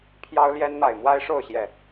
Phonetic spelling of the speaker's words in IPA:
pʰ j ɑ˦ ʊ̯ l j ɛ˦ n n̪ a˨˩ ɪ̯ m w a˦ ɪ̯ ʂ o˥˨ ʊ̯ ɕ j ɛ˨˩

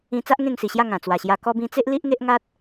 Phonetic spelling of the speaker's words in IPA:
ĩ˧ t͡s a˦ ʔ ŋ ẽ˥˧ ŋ s i˨˩ ɕ j a˥˧ ŋ ã˨˩ t͡s w a˨˩ ɕ j a˧ k ɔ˧ b ĩ˧ t͡s e˦ ʔ l i˦ ʔ ŋ e˦ ʔ ŋ a˦ t̚

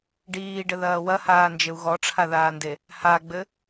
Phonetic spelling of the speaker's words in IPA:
ɖ iː ɖ ɘ ð ɐː w ɐ h aː n d͡ʒ ɘ u̯ ɣ ɔ ʈ͡ʂʰ a ð aː n d e | h a ɡ͡b ɘ

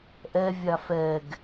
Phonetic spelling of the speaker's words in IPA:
ʔ ɛ vʲ a f ɛ ɡ

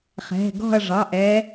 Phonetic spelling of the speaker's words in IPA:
χ ɛ̤˩˧˩ ɡ ɔ̤˦˨ ɐ̯ ʐ ɑ˩˧˩ ʔ ɛ˨˦

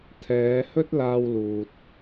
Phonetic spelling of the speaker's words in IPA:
t̪ʰ ɛː˨˧ h ɵ˥ t̚ l aː˧ w l uː˨ t̚

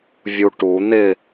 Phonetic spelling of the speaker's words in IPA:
vʲ u ʈ u n̪ ɪ

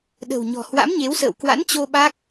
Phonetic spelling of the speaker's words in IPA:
ɗ ə̤˨˩ w ɲ ɔ̤˨˩ h w a̰˧˥ m ɲ e˨˦ w s ə̰ː˧˨ w k w a̰˧˥ n t͡ɕ o˧ ɓ a˦˥ k̚

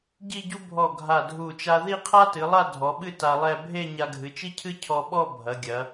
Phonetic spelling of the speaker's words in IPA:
ɟ i˥˧ ɟ u˥ bʱ ɔ˧˩ ɡʱ a˧˩ dʱ u˧˩ t͡ʃ a˧ ð i˥˧ qʰ a˥ t ɨ˩˧ lˠ a˥˧ dʱ ɔ˩˧ ɓ ɨ˥˧ t a˧ lˠ ɛ˥˧ bʱ e˥˧ ɲ a˧ ɡʱ ɨ˩˧ t͡ʃ i˥ cʰ ɨ˥ cʰ ɔ˧ ɓ ɔ˥˧ bʱ ɐ˩˧ ɡʲ ɐ˩˧

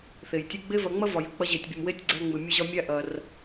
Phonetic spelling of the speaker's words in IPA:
θ e˩ j tʲ ɨ˧ ɡ͡b e˥ v ɐ˧ ŋ͡m ɐ˥ v ɒ˩ j ɨ˩ k͡p ɐ˧ ʑ e˩ tʲ bʲ ə˩ m w e˧ tʲ ɡ͡ǀ æ˧ ŋ͡m ɨ˩ mʲ ə˧ ʑ ɒ˧ mʲ æ˧ ʔ ɐ˩ r

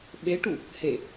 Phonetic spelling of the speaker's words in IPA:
ɓ e ʈ u | h e

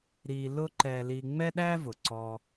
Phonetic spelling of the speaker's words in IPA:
ɾ i˧ l ʊ˥ ǃ ɛ˧ l i˧ ŋ͡m ɛ˥ ɗ æ˥ v ʊ˩ ǀ ɔ˧

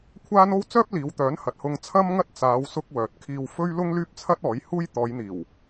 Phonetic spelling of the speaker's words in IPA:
kʷʰ aː˥ n o˥ w t͡s œː˥ p̚ l iː˨˧ w t̪ œː˨˥ n h ɐ˨ t̚ h ʊ˧ ŋ t͡sʰ ɐ˥ m ŋ ɐ˥ t̚ t͡s aː˨˧ w s ʊ˧ k̚ w œː˨ t̚ kʰ iː˧ w f ɵ˥ ɥ l ʊ˥ ŋ l yː˥ p̚ t͡sʰ ɐ˥ t̚ ɔː˨˥ j h uː˥ j t̪ ɔː˨˧ j n̪ iː˨˩ w

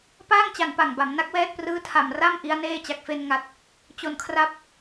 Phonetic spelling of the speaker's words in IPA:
p aː˥˩ ŋ t͡ɕ a˨˩ n p a˨˩ ŋ b a˩˦ m n a˦˥ k̚ w ɛː˥˩ t̚ p r ɯː˦˥ tʰ a˨˩ m r a˥˩ m ʔ i˦˥ a̯ n eː˥˩ t͡ɕ a˨˩ k̚ f e˧ n ŋ a˨˩ t̚ | t͡ɕ o˨˩ n kʰ r a˦˥ p̚

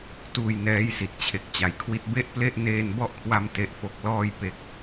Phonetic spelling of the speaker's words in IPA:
t uː˧ j n ɛː˦˥ j s i˨˩ t̚ t͡ɕʰ e˨˩ k̚ t͡ɕ a˩˦ j kʰ w i˥˩ t̚ b e˥˩ ʔ p l e˥˩ ʔ n eː˧ n b ɔ˦˥ ʔ kʰ w a˧ m t e˦˥ ʔ f o˦˥ k̚ l ɔː˧ j p e˨˩ k̚

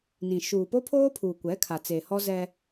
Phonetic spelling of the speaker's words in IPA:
n ĩ˨ ʃ uː˨ p o˦ pʰ oː˦ pʰ uː˨ kʷ ɛ˨˦ kʰ a˨ t͡s e˨ h ɔ˦ z ɛ˦

